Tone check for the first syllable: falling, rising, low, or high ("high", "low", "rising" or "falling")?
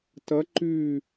rising